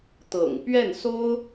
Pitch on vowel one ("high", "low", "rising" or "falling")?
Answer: low